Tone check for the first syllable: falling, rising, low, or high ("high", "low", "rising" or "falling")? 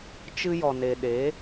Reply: high